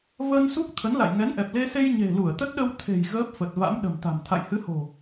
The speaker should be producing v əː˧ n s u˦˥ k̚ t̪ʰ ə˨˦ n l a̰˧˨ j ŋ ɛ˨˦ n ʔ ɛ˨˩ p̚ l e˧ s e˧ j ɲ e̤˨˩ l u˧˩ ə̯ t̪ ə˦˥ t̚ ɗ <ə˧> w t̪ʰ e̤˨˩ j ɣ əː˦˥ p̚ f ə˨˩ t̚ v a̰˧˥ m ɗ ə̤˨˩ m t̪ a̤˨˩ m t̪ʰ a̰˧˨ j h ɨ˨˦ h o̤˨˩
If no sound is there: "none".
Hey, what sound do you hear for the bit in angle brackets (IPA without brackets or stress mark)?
ə˧